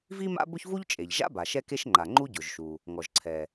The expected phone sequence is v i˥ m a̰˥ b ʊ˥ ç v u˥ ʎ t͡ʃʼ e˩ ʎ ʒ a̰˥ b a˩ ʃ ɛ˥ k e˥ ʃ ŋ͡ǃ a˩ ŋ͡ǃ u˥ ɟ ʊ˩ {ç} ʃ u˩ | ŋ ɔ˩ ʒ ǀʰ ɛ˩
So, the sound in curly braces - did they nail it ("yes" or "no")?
no